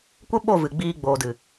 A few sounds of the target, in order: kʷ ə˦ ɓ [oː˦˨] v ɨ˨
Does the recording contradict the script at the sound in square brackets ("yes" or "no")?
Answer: yes